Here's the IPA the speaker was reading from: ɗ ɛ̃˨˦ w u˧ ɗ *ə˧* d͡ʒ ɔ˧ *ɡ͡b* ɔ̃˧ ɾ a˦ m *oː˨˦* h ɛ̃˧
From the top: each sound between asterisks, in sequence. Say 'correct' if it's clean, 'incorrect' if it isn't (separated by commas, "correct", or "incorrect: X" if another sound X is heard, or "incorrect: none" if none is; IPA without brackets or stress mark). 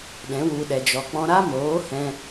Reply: incorrect: ɛ˧, incorrect: k͡p, correct